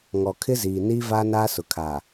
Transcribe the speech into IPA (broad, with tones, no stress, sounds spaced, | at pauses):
ŋ ɔ˨ kʰ ɪ˦ z iː˨ n iː˦ v aː˦ n aː˦ s ʊ˨ kʰ aː˨